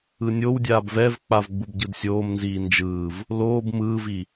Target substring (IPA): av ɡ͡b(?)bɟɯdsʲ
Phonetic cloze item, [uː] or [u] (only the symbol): u